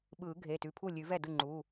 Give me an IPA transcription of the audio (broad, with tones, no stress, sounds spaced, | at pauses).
ɓ ɯː˨˩˦ ɡʱ e˩˧˩ t ʉ˩˧˩ pʰ u˥˩ lʲ ʉ˨˩˦ v ɛ˥˩ d ɯ˥˩ ŋ͡ǃ u˩˧˩